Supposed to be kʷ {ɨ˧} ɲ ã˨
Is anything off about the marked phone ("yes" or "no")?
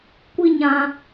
yes